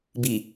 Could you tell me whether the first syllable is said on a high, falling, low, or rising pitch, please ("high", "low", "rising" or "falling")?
low